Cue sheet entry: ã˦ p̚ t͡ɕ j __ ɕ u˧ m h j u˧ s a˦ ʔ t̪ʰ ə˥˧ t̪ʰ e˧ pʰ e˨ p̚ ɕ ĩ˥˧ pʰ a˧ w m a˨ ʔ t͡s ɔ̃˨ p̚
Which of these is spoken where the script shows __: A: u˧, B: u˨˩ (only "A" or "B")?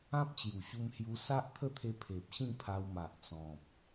B